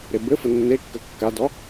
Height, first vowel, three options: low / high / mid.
mid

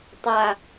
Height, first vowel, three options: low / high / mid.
low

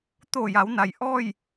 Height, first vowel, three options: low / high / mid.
mid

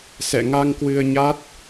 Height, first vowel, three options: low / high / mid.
mid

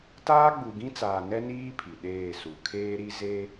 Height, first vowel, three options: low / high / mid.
low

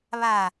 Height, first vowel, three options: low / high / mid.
low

